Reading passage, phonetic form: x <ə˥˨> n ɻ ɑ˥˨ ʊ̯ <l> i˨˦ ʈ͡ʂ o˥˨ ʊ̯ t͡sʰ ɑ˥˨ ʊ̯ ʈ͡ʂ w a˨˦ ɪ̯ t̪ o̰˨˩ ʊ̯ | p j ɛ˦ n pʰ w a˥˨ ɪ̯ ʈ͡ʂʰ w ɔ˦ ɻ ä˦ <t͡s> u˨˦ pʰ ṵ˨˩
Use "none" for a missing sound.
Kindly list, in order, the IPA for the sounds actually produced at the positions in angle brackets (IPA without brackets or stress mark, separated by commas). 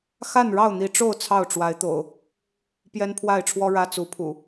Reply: a˥˨, n̪, t͡s